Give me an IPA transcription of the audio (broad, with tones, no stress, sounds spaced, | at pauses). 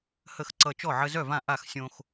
h ə˥˩ x ǀ ʌ˧ t͡ʃ ɔ˥˩ ʕ ə˧ z œ˥˩ v ã˥˩ ʔ a˥˩ x sʲ õ˧ x